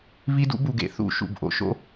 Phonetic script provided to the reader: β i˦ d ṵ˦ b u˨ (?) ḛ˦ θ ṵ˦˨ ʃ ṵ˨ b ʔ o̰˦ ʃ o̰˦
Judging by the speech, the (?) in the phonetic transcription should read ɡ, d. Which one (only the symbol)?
ɡ